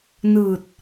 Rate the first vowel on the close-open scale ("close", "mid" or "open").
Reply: close